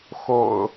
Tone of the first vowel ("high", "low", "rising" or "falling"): low